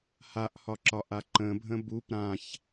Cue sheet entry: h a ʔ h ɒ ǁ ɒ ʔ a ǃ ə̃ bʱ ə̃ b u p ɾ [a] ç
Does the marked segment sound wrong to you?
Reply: yes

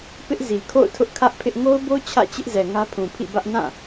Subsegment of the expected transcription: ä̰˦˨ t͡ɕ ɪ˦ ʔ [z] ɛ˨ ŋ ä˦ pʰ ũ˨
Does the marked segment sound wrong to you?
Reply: no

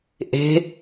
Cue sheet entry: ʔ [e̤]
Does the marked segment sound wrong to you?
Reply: no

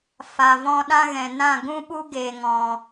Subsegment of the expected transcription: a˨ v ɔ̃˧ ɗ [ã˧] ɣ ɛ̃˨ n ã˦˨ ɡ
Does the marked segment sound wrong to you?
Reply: yes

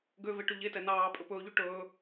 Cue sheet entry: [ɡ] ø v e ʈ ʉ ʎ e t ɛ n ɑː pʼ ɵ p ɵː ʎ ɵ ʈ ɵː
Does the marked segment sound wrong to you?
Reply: no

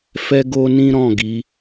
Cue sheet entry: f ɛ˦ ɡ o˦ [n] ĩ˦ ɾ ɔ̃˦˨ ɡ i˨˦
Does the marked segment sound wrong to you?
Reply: no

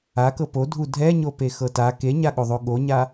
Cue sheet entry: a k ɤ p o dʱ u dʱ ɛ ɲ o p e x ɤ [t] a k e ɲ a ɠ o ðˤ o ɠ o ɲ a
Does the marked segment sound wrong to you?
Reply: no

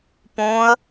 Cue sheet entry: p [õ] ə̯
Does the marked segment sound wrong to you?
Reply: no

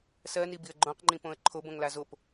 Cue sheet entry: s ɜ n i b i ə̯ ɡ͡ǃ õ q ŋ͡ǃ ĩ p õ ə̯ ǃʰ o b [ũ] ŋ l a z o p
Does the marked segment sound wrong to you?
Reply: yes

